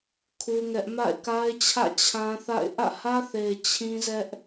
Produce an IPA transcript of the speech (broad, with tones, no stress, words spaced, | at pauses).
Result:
kʰu˦ŋɛ˦ʔ ma̰˦˨ɪ̯ka˦ɪ̯t͡ɕʰä̰˦˨ t͡ɕʰã˦θa̰˦˨ɪ̯ ʔä̰˦˨hä˦θe˨ɪ̯ t͡ɕʰĩ˦zɛ˦ʔ